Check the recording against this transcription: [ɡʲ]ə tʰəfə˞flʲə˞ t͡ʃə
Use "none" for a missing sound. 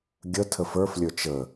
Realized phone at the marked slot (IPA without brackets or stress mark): ɡʲ